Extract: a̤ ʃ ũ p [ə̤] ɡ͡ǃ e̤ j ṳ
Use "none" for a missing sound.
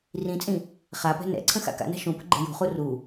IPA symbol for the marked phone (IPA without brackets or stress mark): ə̤